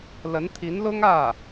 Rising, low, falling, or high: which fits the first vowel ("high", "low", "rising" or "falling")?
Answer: rising